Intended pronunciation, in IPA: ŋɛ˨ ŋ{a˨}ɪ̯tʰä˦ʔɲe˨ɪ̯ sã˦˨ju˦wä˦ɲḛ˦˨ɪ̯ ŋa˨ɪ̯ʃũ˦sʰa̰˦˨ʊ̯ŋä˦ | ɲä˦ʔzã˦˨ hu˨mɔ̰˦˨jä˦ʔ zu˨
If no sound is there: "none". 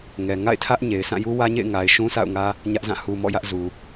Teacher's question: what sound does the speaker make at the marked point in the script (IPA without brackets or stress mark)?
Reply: a̰˦˨